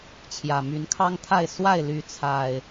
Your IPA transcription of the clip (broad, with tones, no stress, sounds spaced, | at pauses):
t͡ɕʰ j ä˨˩ m y˨˦ n kʰ ɑ˦ ŋ t̪ʰ a˥˨ ɪ̯ s w a˥˨ ɪ̯ l y˦ t͡sʰ a˨˩ ɪ̯